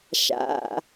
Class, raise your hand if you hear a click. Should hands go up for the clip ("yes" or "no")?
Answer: no